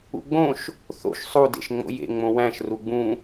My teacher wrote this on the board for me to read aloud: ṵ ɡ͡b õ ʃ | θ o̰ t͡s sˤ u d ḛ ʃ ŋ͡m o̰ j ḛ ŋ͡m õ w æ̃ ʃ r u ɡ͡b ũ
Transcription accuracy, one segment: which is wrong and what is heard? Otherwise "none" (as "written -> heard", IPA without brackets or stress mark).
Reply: t͡s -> ʃ